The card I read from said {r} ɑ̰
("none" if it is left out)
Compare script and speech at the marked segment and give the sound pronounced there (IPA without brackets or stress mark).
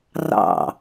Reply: r